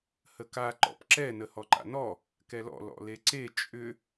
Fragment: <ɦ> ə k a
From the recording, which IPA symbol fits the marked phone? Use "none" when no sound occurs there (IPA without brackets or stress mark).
h